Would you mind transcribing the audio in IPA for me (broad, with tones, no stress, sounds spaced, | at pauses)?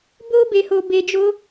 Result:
b o˦ b e˧ h o˧ b e˧ d͡ʒ o˦